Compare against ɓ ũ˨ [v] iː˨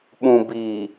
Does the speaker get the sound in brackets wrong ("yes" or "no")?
yes